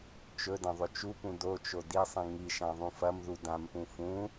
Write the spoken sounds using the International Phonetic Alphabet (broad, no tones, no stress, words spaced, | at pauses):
t͡ʃɵdɐ̃ ðˤɵt͡ʃupũ dot͡ʃo disˤĩ ŋiʃã ðˤũfɐmðu dãmpũ fũ